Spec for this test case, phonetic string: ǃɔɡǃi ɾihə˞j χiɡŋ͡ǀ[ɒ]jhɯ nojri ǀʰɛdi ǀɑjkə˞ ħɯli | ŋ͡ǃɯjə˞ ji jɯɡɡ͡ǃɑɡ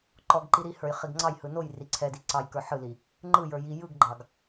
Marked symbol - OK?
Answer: no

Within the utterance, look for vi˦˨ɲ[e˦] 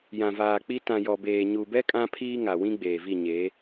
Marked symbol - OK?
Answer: no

